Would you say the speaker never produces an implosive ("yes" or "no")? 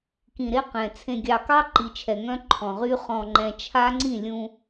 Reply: yes